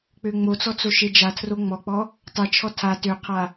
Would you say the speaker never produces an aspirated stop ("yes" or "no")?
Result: no